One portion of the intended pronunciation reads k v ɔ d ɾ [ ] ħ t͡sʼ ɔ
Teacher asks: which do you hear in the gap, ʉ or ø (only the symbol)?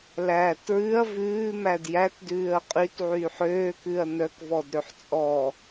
ø